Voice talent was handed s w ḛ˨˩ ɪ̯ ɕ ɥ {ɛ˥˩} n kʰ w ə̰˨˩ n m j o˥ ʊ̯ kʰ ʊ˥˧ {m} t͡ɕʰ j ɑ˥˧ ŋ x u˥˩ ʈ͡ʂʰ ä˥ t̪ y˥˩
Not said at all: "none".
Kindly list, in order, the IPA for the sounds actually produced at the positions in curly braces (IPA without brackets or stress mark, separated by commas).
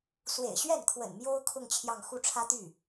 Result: ɛ˥˩, ŋ